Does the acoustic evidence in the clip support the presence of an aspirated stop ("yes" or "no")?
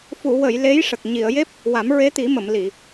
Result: no